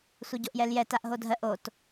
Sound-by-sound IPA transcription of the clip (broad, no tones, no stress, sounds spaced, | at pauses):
sʷ ɛ ɟ o ʔ j ɛ l j ɛ t a ʔ ɦ o dʱ ɜ ʔ o t